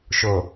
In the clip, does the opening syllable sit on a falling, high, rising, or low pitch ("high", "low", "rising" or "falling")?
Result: low